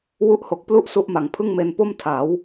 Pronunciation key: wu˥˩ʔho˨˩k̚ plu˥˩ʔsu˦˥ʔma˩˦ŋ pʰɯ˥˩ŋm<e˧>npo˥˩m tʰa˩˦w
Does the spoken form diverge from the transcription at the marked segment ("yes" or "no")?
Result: no